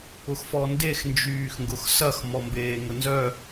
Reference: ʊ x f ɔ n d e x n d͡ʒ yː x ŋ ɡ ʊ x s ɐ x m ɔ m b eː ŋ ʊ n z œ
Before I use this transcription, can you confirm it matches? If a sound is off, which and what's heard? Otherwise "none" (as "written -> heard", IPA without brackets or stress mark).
none